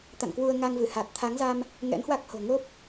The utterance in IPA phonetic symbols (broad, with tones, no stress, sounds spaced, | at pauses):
t̪ a̰˧˨ n k w u˧ ə̯ ŋ a˧ ŋ v ɨ˧˩ h a˨˩ t̚ t̪ʰ a˨˦ ŋ z a˧ m | ŋ ɛ̰˧˥ n h w a˦˥ k̚ h o̤˨˩ ŋ o˦˥ p̚